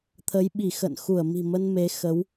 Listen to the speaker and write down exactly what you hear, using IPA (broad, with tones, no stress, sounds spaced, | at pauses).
t̪ʰ ə˨˦ j ɓ i˧˩ x ə̰˧˨ n x u˧˩ ə̯ m i̤˨˩ m ə˧ n m e˨˦ x ə˨˦ w